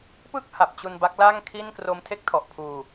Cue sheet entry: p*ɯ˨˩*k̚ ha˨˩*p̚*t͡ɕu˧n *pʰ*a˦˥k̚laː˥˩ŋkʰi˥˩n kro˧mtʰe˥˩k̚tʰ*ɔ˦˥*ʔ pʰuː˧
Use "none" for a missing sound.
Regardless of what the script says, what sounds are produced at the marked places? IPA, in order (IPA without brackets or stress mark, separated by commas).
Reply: ɯ˥˩, p̚, b, ɔ˨˩